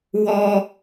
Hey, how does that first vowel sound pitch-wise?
high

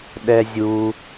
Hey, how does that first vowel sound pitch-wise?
high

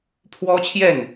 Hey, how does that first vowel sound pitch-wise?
high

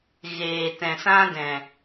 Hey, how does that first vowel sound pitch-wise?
low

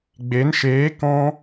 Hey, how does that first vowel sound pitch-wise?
rising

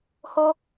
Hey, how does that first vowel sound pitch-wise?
high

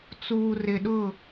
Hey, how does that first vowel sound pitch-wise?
low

